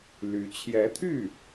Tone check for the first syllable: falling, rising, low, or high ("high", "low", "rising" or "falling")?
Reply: rising